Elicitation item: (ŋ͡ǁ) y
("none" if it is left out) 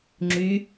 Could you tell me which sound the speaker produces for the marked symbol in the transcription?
ŋ͡ǁ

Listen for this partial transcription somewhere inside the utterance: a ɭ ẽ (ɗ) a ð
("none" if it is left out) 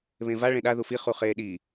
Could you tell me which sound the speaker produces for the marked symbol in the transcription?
ɗ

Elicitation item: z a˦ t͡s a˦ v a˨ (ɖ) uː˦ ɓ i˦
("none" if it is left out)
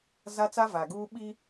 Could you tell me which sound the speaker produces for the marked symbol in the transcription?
ɡ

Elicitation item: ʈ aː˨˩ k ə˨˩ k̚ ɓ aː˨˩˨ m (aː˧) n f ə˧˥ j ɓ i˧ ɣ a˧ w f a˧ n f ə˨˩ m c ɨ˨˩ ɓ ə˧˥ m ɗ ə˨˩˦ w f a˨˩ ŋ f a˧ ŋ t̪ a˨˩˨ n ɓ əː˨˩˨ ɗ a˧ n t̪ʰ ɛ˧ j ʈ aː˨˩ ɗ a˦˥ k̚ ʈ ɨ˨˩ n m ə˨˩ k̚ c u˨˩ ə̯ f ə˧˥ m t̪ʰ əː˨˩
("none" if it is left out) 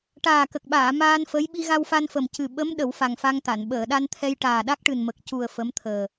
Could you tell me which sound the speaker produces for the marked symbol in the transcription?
aː˧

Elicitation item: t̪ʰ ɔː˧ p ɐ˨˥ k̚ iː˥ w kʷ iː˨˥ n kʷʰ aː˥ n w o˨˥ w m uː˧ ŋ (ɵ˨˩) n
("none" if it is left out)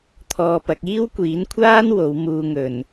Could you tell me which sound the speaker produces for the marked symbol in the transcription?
ɵ˨˩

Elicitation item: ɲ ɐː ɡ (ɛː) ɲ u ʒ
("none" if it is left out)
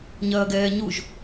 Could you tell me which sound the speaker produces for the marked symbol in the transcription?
ɛː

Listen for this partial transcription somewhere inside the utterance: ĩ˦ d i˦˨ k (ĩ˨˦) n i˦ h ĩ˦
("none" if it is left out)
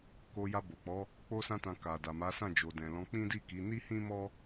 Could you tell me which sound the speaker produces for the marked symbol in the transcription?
i˨˦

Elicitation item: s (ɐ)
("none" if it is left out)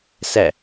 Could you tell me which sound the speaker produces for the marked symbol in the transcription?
æ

